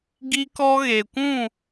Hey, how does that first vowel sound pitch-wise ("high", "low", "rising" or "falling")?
high